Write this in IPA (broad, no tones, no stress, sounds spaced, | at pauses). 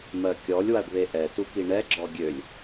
m ɜ kʲ ɔ lʲ w a ɖ β e ʔ ɛ t u k i ɳ ɛ ɡ͡ǁ ɔ ɡʲ ø lʲ